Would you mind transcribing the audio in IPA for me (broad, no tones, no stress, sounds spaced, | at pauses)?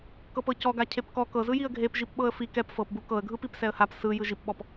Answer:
k ɤ p ɤ c ɔ ɡ a cʰ e p k ɔ k ɤ z ɯ j i ə̯ ɡʱ e p ʒ i p ɓ ɤ ə̯ f i k ɛ p f ɤ p b u k ɤ ə̯ ɡʱ ɯ p i p s ɛ ə̯ h a p s ɯ j ɯ ʒ i p ɓ ɔ p